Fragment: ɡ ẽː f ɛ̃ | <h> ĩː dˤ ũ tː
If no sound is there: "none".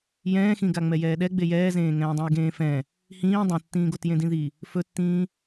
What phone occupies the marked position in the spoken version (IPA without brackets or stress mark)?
h